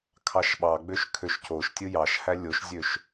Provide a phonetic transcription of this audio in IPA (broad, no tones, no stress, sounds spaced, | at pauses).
kʰ ɑ ʃ ɓ ɑ ɡ͡b ø ʃ kʰ ø ʃ c o ʃ tʲ ɯ j ɑ ʃ h æ lʲ o ʃ zʲ ø ʃ